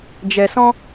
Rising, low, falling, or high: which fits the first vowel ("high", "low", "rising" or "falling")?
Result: low